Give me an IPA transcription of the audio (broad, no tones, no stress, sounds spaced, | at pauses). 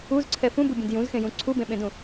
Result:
u z ǀʰ ɛ f ũ b u bʲ ẽ d j ũ z x ẽ j ũ ǀʰ u b ẽ ɓ ẽ d ũ